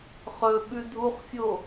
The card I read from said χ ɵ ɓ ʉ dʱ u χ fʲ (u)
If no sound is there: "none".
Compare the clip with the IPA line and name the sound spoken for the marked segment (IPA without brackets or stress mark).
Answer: o